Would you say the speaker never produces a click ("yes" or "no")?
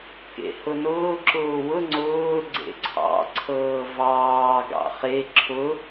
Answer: no